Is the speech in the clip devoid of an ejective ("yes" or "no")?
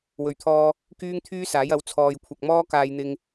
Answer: yes